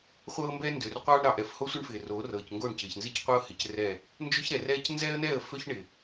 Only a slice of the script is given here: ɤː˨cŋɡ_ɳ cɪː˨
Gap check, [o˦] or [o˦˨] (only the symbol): o˦˨